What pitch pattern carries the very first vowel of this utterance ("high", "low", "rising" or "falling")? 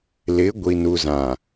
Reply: rising